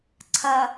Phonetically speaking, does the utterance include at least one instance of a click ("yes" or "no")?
yes